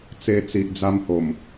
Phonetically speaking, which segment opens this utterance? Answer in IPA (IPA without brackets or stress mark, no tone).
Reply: t͡s